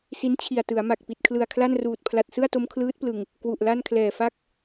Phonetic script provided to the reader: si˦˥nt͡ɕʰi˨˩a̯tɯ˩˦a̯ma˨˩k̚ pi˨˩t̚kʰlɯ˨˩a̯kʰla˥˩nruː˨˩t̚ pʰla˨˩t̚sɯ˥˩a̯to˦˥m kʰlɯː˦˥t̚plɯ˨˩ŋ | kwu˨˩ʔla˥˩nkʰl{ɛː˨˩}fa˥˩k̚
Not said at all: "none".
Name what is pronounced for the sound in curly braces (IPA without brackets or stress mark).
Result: ɛː˨˩